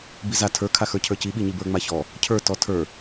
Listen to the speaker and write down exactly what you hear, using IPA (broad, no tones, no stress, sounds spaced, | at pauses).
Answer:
b i z a tʰ ə˞ kʰ a x ə˞ cʰ ə˞ c i ɓ i ɲ i b ə˞ ŋ͡m a ç ɔ | cʰ ə˞ t ɔ tʰ ə˞